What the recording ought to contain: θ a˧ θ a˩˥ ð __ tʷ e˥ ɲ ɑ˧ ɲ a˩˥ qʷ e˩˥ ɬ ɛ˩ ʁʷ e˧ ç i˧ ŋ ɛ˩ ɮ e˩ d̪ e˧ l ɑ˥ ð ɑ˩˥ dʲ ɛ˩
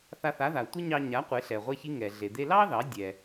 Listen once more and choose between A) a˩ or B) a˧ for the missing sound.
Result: A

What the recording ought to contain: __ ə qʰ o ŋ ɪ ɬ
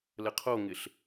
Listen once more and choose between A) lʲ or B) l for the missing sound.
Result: B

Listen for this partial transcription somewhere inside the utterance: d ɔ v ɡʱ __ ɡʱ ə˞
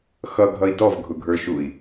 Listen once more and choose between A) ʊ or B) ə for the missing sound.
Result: A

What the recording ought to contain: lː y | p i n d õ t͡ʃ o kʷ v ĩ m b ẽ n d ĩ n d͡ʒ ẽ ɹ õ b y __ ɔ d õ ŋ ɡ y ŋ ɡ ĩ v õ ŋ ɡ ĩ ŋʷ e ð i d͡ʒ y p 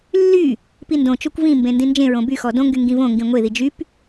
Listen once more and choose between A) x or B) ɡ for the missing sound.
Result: A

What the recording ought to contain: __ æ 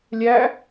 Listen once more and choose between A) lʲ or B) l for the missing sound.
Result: A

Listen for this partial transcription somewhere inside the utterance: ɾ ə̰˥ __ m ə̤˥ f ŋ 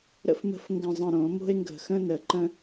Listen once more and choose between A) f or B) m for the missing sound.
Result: A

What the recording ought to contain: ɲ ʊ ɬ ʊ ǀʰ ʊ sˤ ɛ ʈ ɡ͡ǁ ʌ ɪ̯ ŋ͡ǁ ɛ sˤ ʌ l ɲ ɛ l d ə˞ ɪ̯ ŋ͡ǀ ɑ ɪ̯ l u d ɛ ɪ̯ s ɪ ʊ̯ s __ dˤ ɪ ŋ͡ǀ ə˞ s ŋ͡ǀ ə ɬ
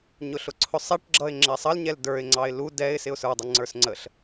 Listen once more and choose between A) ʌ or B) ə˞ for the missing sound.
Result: B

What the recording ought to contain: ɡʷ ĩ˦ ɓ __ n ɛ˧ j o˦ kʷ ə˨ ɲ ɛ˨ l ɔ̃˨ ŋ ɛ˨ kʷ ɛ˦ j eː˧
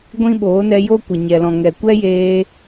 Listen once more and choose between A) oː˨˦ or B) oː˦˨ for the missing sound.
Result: A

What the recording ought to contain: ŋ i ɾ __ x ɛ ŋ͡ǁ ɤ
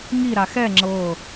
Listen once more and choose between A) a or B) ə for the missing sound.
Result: A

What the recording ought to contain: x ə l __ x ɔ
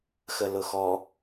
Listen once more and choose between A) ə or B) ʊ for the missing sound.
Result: B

